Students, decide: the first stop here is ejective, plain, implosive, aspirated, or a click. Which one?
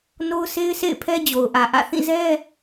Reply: aspirated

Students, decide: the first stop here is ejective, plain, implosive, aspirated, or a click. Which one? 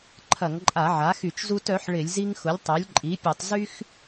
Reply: click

